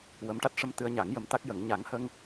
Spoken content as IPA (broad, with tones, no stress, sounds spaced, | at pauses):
w ə˧˥ m ʈ a˦˥ t̚ ʂ ə˧ m t̪ ɨ˧ ə̯ ɲ a˨˩˦ ŋ j ə˧˥ m t̪ a˦˥ k̚ j ə˨˩˦ ŋ ɲ a˨˩˦ ŋ h ə˧ ŋ